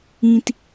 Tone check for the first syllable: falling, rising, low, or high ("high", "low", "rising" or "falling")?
high